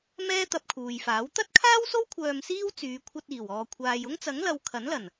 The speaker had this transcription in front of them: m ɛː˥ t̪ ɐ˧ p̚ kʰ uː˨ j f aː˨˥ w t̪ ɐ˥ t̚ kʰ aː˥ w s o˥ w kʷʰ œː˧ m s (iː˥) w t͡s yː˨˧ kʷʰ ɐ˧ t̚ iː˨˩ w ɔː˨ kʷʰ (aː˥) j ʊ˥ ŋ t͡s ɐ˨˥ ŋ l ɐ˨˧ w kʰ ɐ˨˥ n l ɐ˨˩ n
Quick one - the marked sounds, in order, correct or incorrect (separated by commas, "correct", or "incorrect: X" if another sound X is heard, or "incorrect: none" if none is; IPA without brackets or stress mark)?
correct, incorrect: aː˨